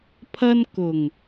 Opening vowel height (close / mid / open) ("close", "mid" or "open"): open